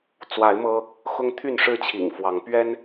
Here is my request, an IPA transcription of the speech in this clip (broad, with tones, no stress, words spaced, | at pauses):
t͡swa˨˦ɪ̯ mɤ˦ | xʊ˦ŋt̪ʰy˥˨nʂɻ̩˥˨ t͡ɕʰḭ˨˩ŋfwɑ˨˦ŋ pɥɛ˦n